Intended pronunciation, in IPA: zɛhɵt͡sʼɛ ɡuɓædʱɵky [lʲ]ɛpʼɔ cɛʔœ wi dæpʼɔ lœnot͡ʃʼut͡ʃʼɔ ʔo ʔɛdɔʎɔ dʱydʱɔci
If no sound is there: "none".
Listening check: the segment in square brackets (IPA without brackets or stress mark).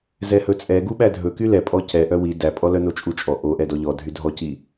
l